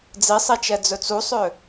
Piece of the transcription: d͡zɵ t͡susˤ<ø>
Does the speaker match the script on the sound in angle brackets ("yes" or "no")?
yes